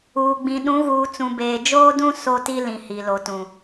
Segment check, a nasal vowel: present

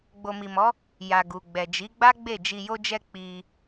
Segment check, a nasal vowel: absent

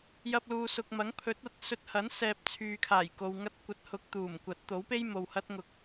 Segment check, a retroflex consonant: absent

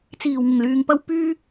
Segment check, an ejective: absent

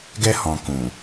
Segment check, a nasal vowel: present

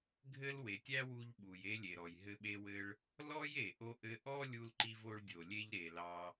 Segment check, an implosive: present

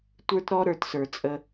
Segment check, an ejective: present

